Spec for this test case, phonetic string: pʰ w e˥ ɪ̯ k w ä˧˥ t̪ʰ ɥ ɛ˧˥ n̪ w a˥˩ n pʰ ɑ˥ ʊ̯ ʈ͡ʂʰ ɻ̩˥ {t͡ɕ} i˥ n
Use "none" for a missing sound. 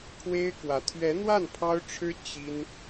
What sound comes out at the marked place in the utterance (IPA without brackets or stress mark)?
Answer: t͡ɕ